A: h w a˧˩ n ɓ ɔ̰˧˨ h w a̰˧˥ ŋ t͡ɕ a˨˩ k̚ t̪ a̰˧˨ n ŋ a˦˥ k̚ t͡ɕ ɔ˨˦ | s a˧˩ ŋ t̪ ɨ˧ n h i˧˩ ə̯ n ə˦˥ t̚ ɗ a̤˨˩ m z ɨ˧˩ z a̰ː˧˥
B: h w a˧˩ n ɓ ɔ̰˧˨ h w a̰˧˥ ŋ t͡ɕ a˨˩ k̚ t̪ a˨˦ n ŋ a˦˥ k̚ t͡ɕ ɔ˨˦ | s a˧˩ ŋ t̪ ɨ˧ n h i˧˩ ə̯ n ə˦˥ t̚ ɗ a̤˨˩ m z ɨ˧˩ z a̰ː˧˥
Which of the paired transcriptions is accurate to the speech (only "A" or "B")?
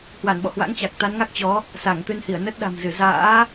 B